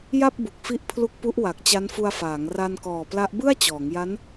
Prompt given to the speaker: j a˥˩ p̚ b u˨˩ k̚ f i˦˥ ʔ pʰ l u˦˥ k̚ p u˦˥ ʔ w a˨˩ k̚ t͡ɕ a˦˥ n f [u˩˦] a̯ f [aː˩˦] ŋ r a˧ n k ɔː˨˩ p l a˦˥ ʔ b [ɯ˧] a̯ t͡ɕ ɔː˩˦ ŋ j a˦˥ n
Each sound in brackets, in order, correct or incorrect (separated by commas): incorrect, correct, incorrect